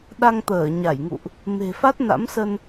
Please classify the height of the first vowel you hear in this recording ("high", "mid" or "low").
low